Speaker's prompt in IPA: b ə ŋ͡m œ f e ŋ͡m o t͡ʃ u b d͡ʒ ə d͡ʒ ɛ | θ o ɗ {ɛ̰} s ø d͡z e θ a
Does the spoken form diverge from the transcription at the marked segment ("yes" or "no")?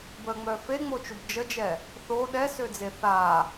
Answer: yes